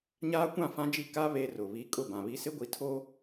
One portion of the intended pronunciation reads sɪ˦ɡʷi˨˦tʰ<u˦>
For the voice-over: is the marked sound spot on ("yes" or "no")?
no